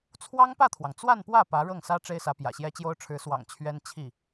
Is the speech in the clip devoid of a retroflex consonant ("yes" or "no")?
no